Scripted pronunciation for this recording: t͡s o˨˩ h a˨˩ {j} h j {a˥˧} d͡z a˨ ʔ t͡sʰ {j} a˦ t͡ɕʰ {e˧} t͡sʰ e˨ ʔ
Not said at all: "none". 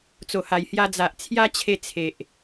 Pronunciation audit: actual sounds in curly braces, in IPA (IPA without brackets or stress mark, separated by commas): j, a˧, j, e˧